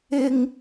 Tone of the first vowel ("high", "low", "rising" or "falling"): high